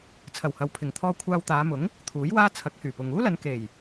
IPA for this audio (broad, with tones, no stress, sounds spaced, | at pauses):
t͡sʰ ɐ˨˩ w h ɐ˨ w pʰ ɪ˨˩ ŋ t̪ʰ ɔː˧ kʷʰ aː˧ w t̪ aː˨˧ m ʊ˨˥ ŋ | t̪ʰ uː˨˥ j w aː˥ t͡sʰ ɐ˨˥ k̚ h yː˨˩ p ʊ˨ ŋ uː˥ l ɐ˨˧ n k e˨˩ j